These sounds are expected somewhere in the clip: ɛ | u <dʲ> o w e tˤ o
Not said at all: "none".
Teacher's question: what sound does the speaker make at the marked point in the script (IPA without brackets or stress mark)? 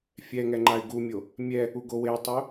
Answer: ɡ